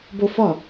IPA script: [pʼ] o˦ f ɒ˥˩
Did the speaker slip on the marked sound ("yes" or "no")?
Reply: yes